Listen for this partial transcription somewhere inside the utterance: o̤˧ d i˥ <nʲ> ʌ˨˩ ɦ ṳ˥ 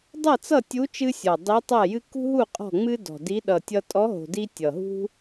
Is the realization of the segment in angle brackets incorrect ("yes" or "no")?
yes